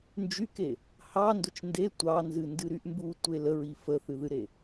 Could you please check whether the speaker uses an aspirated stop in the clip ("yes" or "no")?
no